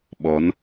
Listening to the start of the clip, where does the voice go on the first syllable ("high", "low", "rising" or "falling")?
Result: rising